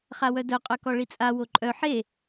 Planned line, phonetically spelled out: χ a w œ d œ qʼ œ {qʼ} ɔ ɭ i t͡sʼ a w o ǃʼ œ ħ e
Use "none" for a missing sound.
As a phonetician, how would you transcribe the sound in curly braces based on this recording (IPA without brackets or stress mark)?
k